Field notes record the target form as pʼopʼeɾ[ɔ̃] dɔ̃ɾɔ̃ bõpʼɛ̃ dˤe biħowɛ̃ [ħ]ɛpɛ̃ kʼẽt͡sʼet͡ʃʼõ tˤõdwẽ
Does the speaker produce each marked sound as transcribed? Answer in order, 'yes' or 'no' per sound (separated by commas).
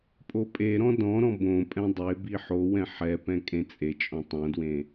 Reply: yes, yes